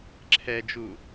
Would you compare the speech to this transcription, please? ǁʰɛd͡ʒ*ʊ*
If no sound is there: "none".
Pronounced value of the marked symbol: u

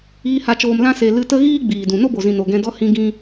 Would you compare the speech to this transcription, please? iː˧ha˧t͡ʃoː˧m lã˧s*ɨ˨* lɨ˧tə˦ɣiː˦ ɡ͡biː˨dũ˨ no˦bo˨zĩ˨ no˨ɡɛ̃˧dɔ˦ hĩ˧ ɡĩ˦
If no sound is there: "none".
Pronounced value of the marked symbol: e˨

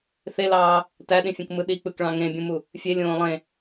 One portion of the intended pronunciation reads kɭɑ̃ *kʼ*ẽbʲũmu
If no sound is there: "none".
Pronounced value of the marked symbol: ŋ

